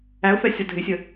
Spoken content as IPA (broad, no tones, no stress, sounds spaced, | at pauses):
æ ʊ̯ f ɛ sʲ ɒ dʱ ɪ sʲ ə